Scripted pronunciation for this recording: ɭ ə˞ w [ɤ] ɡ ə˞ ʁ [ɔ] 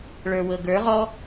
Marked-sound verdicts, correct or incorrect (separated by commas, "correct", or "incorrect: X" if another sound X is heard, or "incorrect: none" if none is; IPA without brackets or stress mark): correct, correct